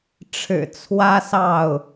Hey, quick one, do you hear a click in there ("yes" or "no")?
no